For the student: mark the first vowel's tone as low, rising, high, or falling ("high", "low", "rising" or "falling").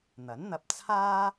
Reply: rising